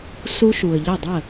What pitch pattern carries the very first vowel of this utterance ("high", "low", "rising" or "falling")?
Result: high